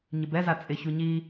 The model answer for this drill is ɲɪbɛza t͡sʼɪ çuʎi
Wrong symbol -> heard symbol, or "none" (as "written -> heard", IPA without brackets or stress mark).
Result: ʎ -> ɲ